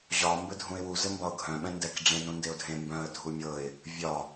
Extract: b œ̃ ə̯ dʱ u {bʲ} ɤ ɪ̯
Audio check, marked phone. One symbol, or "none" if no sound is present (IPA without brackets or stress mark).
mʲ